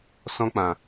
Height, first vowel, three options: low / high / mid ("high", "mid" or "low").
mid